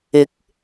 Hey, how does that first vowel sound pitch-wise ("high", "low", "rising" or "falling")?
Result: rising